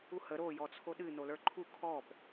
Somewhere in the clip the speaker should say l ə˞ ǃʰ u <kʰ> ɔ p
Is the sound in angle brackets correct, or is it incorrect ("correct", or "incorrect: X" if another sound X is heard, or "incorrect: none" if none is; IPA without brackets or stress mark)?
correct